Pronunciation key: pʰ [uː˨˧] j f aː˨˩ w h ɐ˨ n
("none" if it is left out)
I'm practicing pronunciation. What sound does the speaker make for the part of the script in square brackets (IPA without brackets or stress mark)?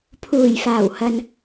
uː˨˩